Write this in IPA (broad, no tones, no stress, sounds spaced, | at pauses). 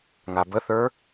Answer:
ŋ a b ə θ ə˞